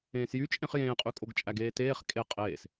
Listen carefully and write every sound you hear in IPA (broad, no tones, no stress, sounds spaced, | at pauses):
ẽː s j y t͡ʃʼ ẽ χ j ẽː qʼ y kʼ o ɡ t͡ʃʼ æ ɡ eː t eː χ kʼ e qʼ eː s